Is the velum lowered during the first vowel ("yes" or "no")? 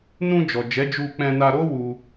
yes